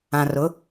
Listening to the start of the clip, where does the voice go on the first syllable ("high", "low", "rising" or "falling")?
low